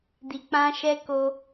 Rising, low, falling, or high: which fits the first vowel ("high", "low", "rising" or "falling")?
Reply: low